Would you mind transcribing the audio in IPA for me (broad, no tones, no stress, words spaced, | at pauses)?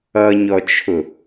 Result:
ʌɲɔt͡ʃʰʊ